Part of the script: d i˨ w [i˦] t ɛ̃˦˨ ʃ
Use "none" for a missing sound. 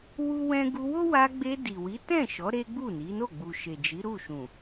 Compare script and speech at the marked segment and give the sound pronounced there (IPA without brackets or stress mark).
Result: i˨˦